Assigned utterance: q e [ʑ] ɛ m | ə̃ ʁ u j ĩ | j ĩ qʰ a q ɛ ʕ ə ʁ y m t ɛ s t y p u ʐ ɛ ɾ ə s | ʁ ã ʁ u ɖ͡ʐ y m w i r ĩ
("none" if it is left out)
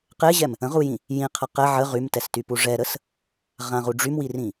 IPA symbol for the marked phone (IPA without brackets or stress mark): ʑ